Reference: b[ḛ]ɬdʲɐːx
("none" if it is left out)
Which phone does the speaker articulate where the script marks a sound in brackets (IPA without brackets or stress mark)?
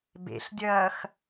ḛ